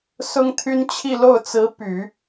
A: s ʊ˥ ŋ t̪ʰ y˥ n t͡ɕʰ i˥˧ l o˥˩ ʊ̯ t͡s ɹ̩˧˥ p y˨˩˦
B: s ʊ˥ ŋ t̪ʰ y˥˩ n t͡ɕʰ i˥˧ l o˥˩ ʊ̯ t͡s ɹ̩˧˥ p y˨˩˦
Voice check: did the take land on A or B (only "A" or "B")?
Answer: A